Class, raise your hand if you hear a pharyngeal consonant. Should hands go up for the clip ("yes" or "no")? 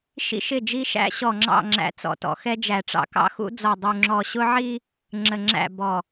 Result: yes